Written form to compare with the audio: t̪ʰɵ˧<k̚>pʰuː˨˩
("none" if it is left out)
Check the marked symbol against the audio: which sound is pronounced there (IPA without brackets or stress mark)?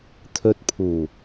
t̚